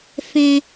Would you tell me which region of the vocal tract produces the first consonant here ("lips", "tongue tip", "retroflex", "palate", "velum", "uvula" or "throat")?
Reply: lips